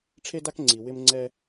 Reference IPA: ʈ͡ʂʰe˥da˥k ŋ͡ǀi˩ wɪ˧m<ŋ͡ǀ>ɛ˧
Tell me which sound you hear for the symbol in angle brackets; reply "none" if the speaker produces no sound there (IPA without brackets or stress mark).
ŋ͡ǀ